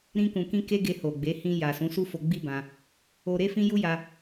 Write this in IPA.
ɾ ĩ˧ k ũ˨ k ĩ˧ k e˦ ɡ e˧ h o˨ ɡ͡b e˨˦ h ĩ˧ j a˨ s ũ˨˦ s u˦ f o˧ ɡ͡b i˦ b ã˧ | o˧ ɾ e˦ f ĩ˦ j u˦ j a˧

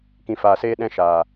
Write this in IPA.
k ĩ˨ f aː˨ s eː˧ ɗ ɛ̃˧ ʃ aː˨

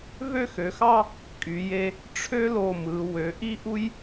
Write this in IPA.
v ø˥˧ x ø˩˧ x ɑ˥˧ | kʼ y˩˧ j e˧ | ʈ͡ʂʰ ø˥ l o˧˩ m ɯ˩˧ w ø˩˧ ʔ i˥ ʔ u˥ j

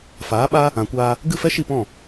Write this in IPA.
f aː˨˦ ɓ a˦ | ã˨ kʷ aː˧ | ɡ ɨ˦˨ f ɛ˦ ʃ i˦˨ p ɔ̃˦˨

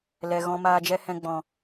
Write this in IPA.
l ɛ˨ ɣ ɔ̃˧ m aː˧ d͡ʒ ɛ˦ h ɛ̃˧ ɡ͡b ɔ̃˨

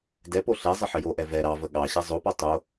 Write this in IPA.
d ɛ p o ɬ ɛ zˤ ə ħ ə j o ʔ ɛ v ɛ ɾ ɑ v ə ɠ ɑ ɕ ɛ zˤ o p ɔ tˤ o

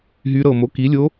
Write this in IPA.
ɦ y˧˥ ɾ ɤ˧˩ m o˩˥ k i˩˥ lʲ o˧˥

